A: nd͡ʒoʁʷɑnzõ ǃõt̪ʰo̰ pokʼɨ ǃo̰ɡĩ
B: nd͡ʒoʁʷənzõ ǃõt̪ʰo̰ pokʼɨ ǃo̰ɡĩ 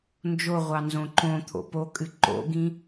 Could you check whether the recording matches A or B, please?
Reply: A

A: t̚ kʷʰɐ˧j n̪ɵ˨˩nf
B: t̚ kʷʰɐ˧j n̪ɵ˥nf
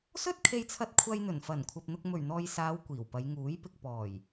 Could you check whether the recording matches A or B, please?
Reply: A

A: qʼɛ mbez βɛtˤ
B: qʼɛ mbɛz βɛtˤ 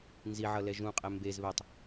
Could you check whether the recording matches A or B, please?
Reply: A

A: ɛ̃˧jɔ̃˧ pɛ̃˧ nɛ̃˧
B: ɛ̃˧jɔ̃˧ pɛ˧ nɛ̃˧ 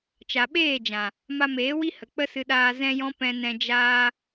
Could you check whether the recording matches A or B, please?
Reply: A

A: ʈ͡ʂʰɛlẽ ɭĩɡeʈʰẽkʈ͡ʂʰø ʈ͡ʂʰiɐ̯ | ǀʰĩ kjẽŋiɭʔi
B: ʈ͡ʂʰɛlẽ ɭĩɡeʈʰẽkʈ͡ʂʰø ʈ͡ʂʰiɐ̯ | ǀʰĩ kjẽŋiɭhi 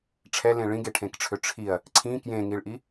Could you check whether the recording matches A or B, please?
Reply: A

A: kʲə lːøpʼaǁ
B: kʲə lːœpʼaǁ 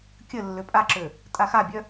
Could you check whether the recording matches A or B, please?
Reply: A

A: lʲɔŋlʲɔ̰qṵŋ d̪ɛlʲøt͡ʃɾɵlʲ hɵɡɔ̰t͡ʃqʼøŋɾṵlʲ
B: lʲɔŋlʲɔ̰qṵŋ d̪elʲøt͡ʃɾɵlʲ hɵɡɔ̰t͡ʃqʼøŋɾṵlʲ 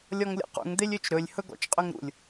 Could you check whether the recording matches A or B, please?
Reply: B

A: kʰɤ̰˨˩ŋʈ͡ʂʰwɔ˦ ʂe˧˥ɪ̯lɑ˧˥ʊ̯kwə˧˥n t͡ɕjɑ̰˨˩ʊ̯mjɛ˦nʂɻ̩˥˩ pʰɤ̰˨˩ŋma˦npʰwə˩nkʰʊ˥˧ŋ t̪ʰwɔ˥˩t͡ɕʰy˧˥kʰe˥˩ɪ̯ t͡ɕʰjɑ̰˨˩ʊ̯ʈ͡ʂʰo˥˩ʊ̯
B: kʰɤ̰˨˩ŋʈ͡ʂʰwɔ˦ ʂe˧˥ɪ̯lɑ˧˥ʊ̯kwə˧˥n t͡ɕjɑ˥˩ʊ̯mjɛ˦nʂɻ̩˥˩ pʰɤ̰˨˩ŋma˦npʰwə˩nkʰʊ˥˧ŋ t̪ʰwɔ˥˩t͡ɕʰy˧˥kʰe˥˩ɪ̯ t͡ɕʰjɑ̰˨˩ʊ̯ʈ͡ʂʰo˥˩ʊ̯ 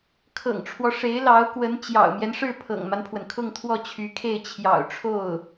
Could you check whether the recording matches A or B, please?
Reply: A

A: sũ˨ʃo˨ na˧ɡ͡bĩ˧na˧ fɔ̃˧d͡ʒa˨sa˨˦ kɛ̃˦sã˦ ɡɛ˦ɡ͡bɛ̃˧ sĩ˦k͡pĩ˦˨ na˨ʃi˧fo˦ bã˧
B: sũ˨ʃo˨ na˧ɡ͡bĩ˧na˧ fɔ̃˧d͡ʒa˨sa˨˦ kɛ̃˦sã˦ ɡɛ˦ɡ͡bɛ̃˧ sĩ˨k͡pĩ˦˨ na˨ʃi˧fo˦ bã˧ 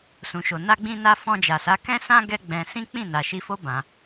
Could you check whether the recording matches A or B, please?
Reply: A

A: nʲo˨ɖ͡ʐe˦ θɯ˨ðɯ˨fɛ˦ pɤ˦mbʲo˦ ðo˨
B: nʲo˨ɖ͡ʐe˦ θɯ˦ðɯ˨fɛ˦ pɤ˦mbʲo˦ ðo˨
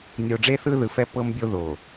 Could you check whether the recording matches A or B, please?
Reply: B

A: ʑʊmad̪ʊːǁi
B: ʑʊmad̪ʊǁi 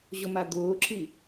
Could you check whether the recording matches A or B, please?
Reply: A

